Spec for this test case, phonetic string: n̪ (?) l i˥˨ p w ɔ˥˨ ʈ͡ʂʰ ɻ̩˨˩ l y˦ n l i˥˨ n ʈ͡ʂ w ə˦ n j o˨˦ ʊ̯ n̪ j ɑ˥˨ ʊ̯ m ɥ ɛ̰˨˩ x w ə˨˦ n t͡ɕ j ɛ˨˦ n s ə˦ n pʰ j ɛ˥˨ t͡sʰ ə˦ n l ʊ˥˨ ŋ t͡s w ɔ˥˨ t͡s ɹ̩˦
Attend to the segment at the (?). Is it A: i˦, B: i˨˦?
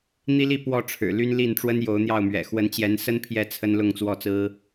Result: A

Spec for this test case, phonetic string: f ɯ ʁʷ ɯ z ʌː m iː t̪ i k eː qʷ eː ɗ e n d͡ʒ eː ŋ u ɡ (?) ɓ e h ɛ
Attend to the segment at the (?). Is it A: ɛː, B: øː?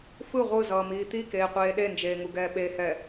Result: A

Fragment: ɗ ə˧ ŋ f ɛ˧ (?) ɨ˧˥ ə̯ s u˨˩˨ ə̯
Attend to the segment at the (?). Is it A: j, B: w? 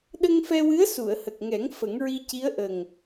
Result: B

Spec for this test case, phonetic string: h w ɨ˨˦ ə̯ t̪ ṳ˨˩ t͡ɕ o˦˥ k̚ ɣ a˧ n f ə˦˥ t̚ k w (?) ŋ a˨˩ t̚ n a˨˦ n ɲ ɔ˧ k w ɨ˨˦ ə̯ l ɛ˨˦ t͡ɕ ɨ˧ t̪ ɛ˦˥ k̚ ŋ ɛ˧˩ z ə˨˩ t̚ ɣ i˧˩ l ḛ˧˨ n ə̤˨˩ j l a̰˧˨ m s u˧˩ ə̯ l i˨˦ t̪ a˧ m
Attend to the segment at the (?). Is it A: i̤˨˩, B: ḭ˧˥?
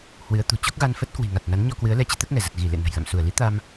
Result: A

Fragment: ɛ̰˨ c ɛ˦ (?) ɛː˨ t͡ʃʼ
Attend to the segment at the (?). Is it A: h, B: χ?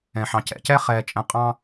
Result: B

